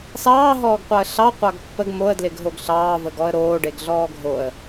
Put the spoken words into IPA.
s ɑː ɦ ɔː ɡ qʷ ɑ ə̯ ɬ ɑ qʷ ɑ ɡ pː ə ɡ m o ə̯ d l ɪ ɡ ɦ o ɡ ɬ ɑː v ə ɡ ɔ ə̯ ɾ oː ɖ e ɡ ɮ ɔː ɡʱ o ə̯

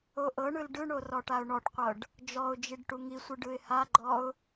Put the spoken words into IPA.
o ʔ ɤ ɳ ɯ l ɖ ɯ ɳ o r ɔ ʈ a ʊ̯ ɳ ɔ ʈ qʷ ɤ ɖ | d͡ʒ ɔ ʊ̯ d͡ʒ i ɖ ʈ u ŋ i sʷ ɯ ɖ ɯ ɪ̯ h a ɡ͡ǃ ɔ ʊ̯

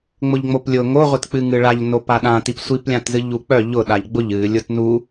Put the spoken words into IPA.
ŋ͡m ʊ ʎ ŋ͡m o p lʲ ʊ ŋ o ʁʷ i t k͡p ɨ ŋ ɨ ɭ a ʎ n o p a ɗ ã t i p sʷ i p lʲ ã t z ɨ ʎ u k͡p œ ʎ ʊ ɗ a ʎ ɡ͡b ʊ ʎ ɨ lʲ ʊ t n u

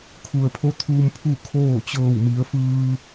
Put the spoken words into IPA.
kʰ u˩ ə̯ pʰ o˧˥ t̪ʰ uː˧ m pʰ u˥˨ kʰ oː˥˨ t͡ɕ ɤː˧˩ w m i˩˧ ə̯ f ɯː˧

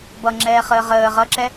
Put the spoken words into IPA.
b ʌ ŋ͡ǁ ɛː χ əː ʁ əː ʁ ʌ ǁ ɛ

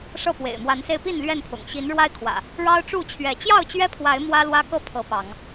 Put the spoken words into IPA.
ʂ ɤ˥˨ p w ḛ˨˩ ɪ̯ m w a˨˦ n s e˧ ɪ̯ p i˥˨ n l ɥ ɛ˥˨ n pʰ ʊ̰˨˩ ŋ ɕ i˨˦ n ɻ w a˦ ɪ̯ kʰ w ä̰˨˩ | ɻ ɑ˦ ʊ̯ ʈ͡ʂ u˥˨ t͡ɕʰ ɥ ɛ˨˦ t͡ɕ j ɑ˥˨ ʊ̯ t͡ɕ ɥ ɛ˦ pʰ w a˨˦ ɪ̯ m w ä˦ l w ä˦ k ɤ˥˨ pʰ ɤ˨˦ p ɑ˨˦ ŋ

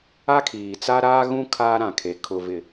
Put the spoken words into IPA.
a˦ kʰ iː˨ t͡s a˦ ɾ aː˦ ɣ ũ˦ kʰ aː˦ ɾ ã˨ kʰ e˨ kʰ ʊ˨ v ɪ˨

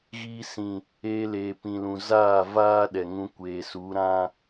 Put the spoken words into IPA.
ɣ iː˧ s ĩ˨ | eː˧ l eː˨ p ĩ˨ l ũ˨ z aː˦˨ v aː˦ ɗ ɛ˨ ŋ ũ˧ kʷ eː˨ s u˨˦ ɾ ã˦

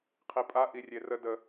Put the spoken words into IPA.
qʰ i pʼ a ʔ i rʲ e r ə d ə

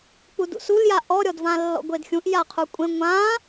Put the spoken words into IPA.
k͡p u d ṵ s u l j a ʔ ɔ ɾʲ ɔ d v ã lː ɔ̰ ɡʷ e d xʲ ũ ʔ j a qʰ u kʷʼ ẽ ŋʷ ã

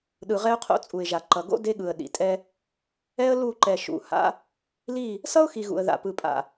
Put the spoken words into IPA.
ɗ ɯ˨ ʁ ɛ˦ ʊ̯ qʰ o̰˦ t͡sʼ u˨ ɪ̯ ʒ a˨ ǃ ʌ˨ ɡ o̰˦ d e˦ ɠ ɯ˨ ə̯ ɗ ḭ˨ tʼ ɛ˦ | ɛ˦ ə̯ l u˦˨ ǃ ɛ˨ ʃ ṵ˨˦ h a̰˦ | l i˦˨ | s ʌ˦ ʊ̯ x i˨ ɣ ṵ˨ ə̯ ð a̰˨ p ɯ˨ pʼ a̰˨

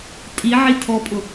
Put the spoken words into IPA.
tʼ i ʕ i tʰ ɔ pʼ ʊ

